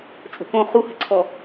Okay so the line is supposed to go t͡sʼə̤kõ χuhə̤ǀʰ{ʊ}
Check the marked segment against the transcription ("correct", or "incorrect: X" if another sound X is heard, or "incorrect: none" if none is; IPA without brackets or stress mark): incorrect: ɔ